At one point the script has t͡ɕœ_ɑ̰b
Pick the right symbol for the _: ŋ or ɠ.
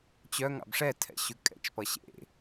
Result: ŋ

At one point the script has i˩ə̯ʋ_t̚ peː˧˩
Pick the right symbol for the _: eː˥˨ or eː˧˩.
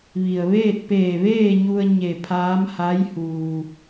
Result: eː˥˨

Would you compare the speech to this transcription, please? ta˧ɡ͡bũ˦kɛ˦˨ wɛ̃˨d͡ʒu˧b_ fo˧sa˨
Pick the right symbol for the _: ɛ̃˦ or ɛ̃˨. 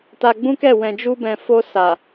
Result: ɛ̃˨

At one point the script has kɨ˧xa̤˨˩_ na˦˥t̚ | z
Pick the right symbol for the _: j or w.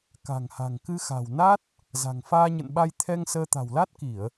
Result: w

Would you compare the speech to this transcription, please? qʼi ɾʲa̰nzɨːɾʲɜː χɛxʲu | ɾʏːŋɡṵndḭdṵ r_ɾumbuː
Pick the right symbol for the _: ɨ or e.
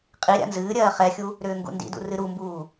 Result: ɨ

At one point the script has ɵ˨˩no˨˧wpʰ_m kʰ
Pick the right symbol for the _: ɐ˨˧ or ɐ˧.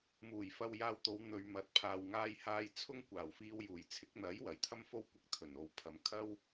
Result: ɐ˨˧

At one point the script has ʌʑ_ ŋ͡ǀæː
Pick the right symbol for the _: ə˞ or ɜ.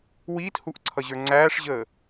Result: ə˞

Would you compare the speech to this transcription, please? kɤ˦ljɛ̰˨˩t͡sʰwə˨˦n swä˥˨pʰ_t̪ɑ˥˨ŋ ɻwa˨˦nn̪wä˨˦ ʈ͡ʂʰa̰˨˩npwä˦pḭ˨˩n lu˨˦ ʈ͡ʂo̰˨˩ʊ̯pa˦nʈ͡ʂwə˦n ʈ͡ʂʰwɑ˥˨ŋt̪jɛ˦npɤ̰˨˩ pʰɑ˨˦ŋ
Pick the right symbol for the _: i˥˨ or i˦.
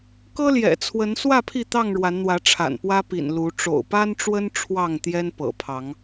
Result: i˥˨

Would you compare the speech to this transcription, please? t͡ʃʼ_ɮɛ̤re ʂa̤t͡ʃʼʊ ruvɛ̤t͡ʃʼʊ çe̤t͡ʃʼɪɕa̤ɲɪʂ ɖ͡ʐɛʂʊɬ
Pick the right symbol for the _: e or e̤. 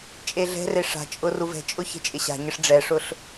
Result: e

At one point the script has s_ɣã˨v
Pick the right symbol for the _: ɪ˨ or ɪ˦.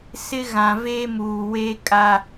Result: ɪ˦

